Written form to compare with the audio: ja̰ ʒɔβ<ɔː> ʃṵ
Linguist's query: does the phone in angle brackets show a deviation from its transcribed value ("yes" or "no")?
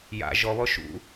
yes